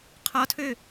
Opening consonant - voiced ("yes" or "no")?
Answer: no